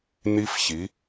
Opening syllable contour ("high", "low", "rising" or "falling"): high